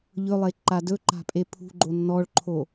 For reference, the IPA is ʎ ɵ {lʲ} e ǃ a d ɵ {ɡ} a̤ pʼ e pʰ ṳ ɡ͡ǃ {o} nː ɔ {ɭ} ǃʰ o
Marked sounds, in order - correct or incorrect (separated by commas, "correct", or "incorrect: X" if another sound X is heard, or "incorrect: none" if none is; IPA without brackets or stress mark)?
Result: incorrect: lˠ, incorrect: ǃ, correct, correct